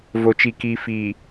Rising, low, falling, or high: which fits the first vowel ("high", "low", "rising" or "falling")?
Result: low